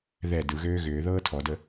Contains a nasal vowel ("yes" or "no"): no